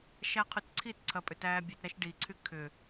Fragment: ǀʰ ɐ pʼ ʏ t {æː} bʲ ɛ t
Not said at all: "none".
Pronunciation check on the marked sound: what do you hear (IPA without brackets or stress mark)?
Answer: æː